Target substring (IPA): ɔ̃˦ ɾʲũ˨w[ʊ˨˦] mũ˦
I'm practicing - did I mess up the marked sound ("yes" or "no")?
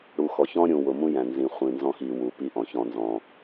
yes